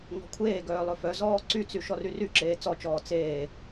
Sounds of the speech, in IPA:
ŋ ɔ̤ kʷʰ eː ɡ œː lˠ ɵ f œ z ɔː ǀ y t͡s y ʃ ɔ r y r y ǁ eː t͡s ɔ t͡ʃ ɔː t͡s eː

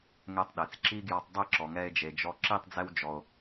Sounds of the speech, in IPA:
ŋ ɛ˧ tˤ ɗ e˨ t͡s ǁ i˦ ɡ j ɔ˧ tˤ dˤ e˦˨ ǁ ɔ˨ ŋ ɛ˧ e̯ d͡ʒ e˨ d͡ʒ ɔ˧ ǁ i˦˨ tˤ d͡z ɛ˧ w d͡ʒ ɔ˨ o̯

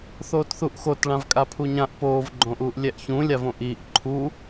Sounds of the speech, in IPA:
θ oː t θ u ʔ x o t ɭ ã v kʼ a pʰ u ɲ ã ʔ p oː v ɡ͡ǃ õ ʔ uː ʔ lʲ ɛ ʔ ç ũ lʲ a v õ ʔ iː ʔ ǃʰ u

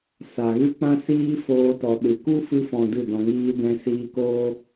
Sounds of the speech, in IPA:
s a˨ ɣ ɨ˦ k͡p ã˦ s iː˦ f oː˧ t ɔ˨ ɗ ɨ˨ k u˦ f ɨ˧ f ɔ̃˨ d ɨ˦˨ d ɔ̃˧ ŋ iː˦ d ɛ̃˧ s iː˧ k oː˦

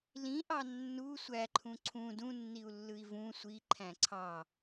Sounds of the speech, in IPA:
l ĩ ʔ ɑ nː u sʷ æ ǃʰ ũ ǀʰ ũ d ũ nː i u̯ lː ɯ i̯ v ũ sʷ i ǃʰ æ̃ ǀʰ ɑ

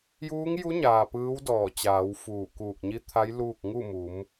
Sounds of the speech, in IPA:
j uː˧˥ ŋ j u˧˥ ɲ aː˩ p ɯː˧˥ w d ɔː˧˩ t͡ɕ aː˩˧ w f uː˧˩ k uː˧˩ k̚ ɲ i˧˥ t̪ʰ a˧˥ j l uː˥˨ k̚ ŋ u˥˨ m u˩˧ m

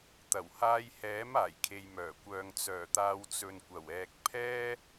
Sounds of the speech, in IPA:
t̪ ɐ˨˩ w h aː˧ j h ɛː˨˥ m aː˨˩ j kʰ e˨ j m œː˨˩ kʷ œː˨ ŋ t͡s œː˨˩ t̪ aː˨˧ w t͡s ɵ˨ n kʷ ɐ˨˩ w ɛː˨ k̚ pʰ ɛː˥

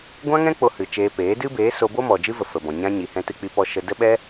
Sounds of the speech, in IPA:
ɡʷ ã˦ ŋ ɛ̃˦ k͡p o˧ h ɨ˨ t͡ʃ eː˧ p eː˨˦ d ɨ˦ b eː˨˦ s o˧ b o˦ m ɔ˨ d͡ʒ ɨ˦ v ə˨ f ə˨ b ɔ̃˨ ɲ ã˧ ɲ i˨ h ɛ̃˧ t ɨ˧ k͡p i˧ p ɔ˧ ʃ ə˧ d ə˧ ɓ ɛ˧

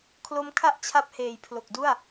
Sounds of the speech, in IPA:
kʰ l o˦˥ m kʰ a˥˩ ʔ t͡ɕʰ a˦˥ p̚ h eː˨˩ j pʰ l o˨˩ k̚ d u˥˩ a̯

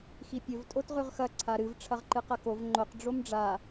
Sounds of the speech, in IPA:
x i pʲ ɵ v tʼ o t ʁ ʉ ʁ x ɐ ǀʰ a ɾ ɨ v ʈ͡ʂʰ ɐ ʁ ǃ ɨ q ɐ k o v ŋ͡ǃ o q ɖ͡ʐ o m ɖ͡ʐ a

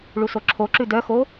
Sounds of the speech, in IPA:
ɭ u s o ǁʰ o ǁ ʉ d œ x o

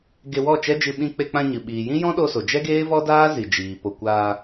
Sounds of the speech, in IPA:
ɡ e˧ w ɔ˦˨ t͡ʃ ɛ˦ d͡ʒ ɨ˧ ɓ ĩ˧ k͡p e˧ k͡p ã˧ ɲ ɨ˨ ɓ iː˨ j ĩ˦ j ɔ̃˦ ɗ o˧ s o˨ d͡ʒ ɛ˦ ɡ eː˦ v ɔ˦ d aː˦ z i˨ d͡ʒ iː˨ p o˧ kʷ aː˧

